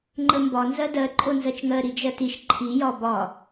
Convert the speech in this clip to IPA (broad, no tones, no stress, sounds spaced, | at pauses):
ŋ͡ǃ ə m b ɒ n z ɜ d ɜ ǃʼ o n z ɜ t͡ʃ ŋ ɜ ɾ i d͡ʒ ɜ t i ʃ ǃʰ i j ɒ b ɒ